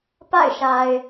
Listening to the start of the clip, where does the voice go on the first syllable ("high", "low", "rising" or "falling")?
falling